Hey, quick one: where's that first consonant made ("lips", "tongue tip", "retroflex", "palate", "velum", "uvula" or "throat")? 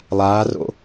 tongue tip